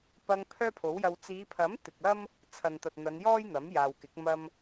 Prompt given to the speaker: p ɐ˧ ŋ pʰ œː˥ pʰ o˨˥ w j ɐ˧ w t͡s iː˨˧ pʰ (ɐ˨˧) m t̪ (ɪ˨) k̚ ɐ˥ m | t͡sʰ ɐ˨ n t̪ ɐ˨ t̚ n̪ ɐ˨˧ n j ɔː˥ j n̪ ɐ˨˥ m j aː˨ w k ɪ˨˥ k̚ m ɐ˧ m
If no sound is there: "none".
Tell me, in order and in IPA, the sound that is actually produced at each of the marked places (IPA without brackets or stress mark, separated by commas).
ɐ˨˥, ɪ˨